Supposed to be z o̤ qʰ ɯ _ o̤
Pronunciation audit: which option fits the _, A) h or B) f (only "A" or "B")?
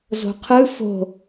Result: B